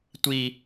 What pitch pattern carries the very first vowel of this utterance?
high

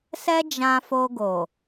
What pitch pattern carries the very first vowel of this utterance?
high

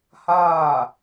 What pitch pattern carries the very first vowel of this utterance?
falling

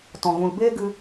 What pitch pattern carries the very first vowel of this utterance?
low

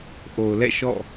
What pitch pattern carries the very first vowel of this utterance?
low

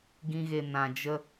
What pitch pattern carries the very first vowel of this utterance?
high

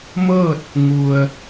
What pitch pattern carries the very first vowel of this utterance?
falling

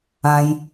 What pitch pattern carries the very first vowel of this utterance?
low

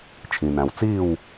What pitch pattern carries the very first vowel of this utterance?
low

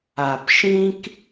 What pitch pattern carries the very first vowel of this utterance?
low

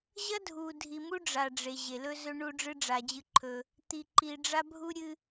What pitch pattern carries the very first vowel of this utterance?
high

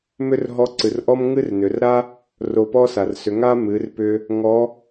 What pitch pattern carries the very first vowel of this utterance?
high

